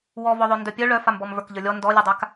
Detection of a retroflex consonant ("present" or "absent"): present